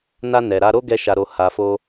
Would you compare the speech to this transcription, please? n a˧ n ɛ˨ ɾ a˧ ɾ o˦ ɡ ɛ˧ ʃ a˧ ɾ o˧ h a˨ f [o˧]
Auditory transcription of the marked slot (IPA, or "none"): o˧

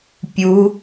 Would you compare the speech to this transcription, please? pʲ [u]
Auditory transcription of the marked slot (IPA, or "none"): u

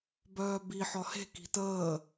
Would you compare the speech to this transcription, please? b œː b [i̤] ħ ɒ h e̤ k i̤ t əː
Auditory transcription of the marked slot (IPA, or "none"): i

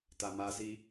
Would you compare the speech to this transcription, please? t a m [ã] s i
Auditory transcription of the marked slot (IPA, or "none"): a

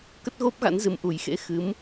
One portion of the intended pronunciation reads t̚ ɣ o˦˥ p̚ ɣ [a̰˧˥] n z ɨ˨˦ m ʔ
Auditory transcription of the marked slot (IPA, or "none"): a̰˧˥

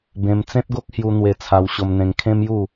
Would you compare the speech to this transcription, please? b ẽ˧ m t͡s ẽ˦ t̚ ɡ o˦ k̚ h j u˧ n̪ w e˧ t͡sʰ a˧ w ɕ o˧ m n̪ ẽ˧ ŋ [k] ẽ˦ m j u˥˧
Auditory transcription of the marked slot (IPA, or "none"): kʰ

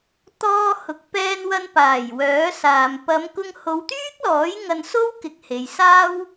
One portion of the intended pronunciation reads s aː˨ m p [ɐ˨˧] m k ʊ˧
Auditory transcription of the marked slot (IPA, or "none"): ɐ˨˧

